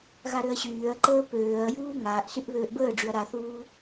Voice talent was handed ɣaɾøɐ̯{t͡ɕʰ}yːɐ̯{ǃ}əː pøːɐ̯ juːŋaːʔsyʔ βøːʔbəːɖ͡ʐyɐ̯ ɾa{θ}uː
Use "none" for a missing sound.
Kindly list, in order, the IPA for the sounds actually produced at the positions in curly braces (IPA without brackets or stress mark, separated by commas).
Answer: ɕ, ǃ, θ